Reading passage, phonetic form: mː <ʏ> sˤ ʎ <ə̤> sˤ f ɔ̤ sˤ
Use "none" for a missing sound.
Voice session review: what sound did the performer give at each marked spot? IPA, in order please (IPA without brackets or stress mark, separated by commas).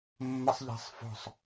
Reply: ə, æ̤